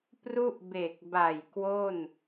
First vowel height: high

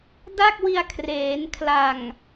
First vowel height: low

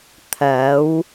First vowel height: low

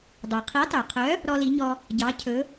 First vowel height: mid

